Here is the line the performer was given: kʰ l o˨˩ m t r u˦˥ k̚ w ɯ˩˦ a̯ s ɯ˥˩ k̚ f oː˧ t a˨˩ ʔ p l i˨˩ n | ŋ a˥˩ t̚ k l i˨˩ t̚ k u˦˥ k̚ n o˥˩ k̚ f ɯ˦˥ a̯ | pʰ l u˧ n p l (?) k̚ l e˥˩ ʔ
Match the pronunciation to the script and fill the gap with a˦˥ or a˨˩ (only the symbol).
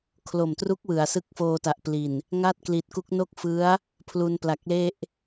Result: a˨˩